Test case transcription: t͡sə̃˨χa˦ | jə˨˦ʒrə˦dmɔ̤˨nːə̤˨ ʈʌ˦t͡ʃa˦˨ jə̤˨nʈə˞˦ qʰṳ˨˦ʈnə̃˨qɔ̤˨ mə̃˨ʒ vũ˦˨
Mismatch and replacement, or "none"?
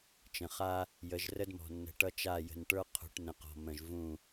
t͡s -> t͡ʃ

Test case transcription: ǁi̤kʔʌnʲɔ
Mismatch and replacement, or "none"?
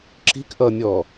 none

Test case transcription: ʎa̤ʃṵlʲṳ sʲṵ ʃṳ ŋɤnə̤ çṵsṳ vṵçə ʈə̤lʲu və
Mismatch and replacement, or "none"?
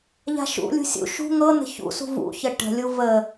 none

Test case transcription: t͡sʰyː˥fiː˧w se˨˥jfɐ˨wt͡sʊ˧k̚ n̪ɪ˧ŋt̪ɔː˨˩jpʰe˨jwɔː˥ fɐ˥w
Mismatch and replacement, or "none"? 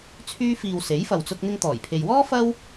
none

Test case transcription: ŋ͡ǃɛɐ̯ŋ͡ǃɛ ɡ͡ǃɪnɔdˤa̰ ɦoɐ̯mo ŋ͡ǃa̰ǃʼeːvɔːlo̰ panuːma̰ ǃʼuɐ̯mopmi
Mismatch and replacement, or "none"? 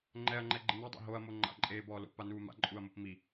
v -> b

